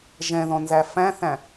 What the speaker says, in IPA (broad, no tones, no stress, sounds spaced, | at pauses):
ʒ ɛ̃ ð ɔ̃ n z æ f æ̃ θ æ̃